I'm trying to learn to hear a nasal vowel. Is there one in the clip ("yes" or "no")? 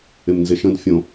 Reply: yes